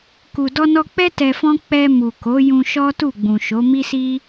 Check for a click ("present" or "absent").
absent